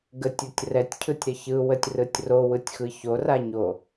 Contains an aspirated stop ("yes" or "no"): yes